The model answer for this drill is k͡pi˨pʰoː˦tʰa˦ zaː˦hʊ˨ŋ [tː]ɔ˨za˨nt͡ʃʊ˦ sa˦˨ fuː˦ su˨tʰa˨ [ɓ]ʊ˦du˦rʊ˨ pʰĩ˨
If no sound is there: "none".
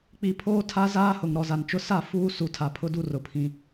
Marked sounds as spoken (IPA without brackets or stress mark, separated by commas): ɾ, pʰ